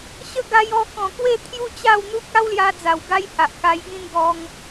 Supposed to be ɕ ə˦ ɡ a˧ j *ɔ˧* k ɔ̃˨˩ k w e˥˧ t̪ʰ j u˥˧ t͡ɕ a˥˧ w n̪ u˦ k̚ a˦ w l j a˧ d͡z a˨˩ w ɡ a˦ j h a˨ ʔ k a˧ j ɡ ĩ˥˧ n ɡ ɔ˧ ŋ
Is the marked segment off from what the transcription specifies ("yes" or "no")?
no